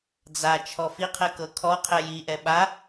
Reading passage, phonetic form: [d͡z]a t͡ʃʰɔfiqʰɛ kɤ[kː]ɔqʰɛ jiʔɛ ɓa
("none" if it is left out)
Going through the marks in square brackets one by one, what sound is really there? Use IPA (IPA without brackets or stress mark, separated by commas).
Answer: d͡z, kʰ